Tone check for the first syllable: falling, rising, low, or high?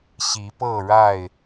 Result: rising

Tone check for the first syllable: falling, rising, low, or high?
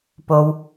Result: low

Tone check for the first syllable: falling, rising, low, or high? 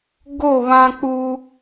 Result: falling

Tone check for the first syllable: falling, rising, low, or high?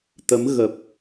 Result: rising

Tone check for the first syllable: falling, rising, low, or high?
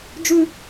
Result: high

